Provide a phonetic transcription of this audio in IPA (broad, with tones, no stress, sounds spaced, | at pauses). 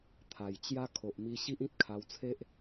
t̪ʰ a˨˩ j t͡ɕ j a˦ kʰ o˨ ʔ m i˧ ɕ i˦ ʔ ĩ˦ t̚ kʰ a˧ w t͡sʰ e˦ ʔ